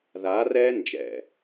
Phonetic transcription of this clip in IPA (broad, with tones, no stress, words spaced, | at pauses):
ðaː˨˦rɛː˦ nd͡ʒɛ̰˨